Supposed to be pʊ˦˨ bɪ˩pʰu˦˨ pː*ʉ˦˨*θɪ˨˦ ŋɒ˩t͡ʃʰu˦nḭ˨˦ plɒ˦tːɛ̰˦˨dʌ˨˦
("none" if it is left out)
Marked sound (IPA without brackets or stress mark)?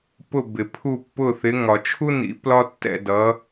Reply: ʊ˦˨